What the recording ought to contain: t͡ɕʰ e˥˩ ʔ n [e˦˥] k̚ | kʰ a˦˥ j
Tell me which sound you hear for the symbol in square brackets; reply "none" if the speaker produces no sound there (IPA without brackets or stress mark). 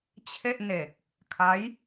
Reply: e˨˩